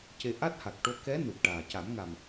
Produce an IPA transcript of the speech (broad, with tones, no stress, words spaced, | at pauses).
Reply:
ce˧ ʔa˦˥t̚ha˨˩k̚ʈo˧ kɛ˧˥nu˨˩t̚ʈaː˨˩ ca˨˩˦mŋa˨˩m